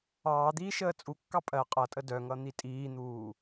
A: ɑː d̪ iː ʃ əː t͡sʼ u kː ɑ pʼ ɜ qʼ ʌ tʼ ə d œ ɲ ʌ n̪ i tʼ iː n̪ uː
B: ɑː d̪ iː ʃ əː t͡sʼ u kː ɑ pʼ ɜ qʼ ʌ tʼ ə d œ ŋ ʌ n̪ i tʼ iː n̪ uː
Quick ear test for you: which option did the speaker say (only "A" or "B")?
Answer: B